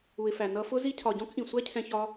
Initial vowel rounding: rounded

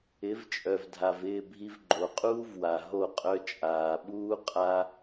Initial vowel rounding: unrounded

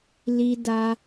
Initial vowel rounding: unrounded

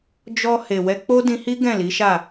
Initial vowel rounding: rounded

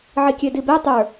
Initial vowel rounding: unrounded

